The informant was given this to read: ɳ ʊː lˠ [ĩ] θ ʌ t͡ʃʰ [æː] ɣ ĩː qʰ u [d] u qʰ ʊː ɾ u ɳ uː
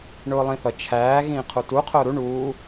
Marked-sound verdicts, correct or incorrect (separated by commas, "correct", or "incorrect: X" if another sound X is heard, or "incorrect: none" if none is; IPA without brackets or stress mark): correct, correct, incorrect: t